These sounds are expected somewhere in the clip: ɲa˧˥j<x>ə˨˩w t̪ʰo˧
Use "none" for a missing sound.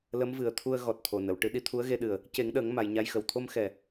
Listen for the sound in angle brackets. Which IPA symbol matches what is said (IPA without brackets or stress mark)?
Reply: x